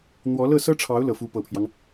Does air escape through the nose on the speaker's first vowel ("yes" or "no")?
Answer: no